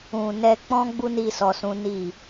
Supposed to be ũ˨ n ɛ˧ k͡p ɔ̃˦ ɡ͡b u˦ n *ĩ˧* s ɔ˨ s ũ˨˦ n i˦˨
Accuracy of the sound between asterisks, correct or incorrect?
incorrect